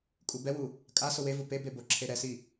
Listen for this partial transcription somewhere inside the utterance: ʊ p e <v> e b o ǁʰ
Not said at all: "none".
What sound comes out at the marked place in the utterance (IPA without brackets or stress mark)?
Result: b